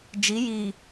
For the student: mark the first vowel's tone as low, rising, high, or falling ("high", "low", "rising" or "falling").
rising